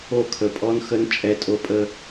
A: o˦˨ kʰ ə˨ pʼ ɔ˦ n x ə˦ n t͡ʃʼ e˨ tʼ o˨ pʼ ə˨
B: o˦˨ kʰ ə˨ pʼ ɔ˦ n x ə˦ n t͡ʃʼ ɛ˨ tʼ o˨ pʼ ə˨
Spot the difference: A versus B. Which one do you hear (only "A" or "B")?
B